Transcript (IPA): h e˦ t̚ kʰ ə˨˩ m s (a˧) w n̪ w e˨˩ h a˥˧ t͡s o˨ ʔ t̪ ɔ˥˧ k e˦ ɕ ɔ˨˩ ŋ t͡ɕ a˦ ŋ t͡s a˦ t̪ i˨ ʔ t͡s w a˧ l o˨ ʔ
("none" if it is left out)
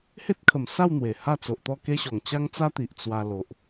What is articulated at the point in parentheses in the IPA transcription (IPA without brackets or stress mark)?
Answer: a˥˧